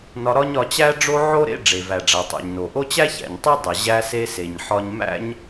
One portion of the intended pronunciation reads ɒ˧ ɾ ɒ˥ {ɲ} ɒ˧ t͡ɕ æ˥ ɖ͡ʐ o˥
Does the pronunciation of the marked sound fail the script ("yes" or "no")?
no